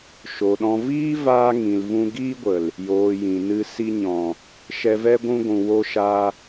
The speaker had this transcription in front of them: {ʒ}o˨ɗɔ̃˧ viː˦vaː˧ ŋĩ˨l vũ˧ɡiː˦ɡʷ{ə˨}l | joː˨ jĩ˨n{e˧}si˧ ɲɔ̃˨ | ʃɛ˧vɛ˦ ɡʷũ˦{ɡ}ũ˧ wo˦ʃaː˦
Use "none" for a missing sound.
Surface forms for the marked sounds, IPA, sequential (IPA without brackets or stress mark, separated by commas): ʃ, ə˨, ɨ˧, ɡʷ